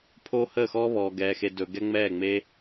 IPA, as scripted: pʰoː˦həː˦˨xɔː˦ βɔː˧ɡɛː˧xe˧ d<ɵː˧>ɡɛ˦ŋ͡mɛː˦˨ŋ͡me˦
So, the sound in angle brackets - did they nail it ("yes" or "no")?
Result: yes